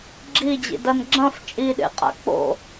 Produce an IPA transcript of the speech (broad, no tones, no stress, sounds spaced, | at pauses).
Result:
ɡ͡ǁ i d͡ʑ ḭ d ɐ n ɡ͡ǁ ɐ̃ f t͡ʃʼ i ɗ ḛ qʼ a̰ k͡p o̰